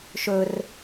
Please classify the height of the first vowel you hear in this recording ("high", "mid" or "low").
mid